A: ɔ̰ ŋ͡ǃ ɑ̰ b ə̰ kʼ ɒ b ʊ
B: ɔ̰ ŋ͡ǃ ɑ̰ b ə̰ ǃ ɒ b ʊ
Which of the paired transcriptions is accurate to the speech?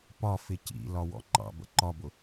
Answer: B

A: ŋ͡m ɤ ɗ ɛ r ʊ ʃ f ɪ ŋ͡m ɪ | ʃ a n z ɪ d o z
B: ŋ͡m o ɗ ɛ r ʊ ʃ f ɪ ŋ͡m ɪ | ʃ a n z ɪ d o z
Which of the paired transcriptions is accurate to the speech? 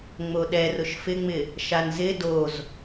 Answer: B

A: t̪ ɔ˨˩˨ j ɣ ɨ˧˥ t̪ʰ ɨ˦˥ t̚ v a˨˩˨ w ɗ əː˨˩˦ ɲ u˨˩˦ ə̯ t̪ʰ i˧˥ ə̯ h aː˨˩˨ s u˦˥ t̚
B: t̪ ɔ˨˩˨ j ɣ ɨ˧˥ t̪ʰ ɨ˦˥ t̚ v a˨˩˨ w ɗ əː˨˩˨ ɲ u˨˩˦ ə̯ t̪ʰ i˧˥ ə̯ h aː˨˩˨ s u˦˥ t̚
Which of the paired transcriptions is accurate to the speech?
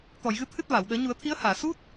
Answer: A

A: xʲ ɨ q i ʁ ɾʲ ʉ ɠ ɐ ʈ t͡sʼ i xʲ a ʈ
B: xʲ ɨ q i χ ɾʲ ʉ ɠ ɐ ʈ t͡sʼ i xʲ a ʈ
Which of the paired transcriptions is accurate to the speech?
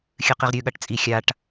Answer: A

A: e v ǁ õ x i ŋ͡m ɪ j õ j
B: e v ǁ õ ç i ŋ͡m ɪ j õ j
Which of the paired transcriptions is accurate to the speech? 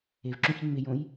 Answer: B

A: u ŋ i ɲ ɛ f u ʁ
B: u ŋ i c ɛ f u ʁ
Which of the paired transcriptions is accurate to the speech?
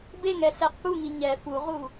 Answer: A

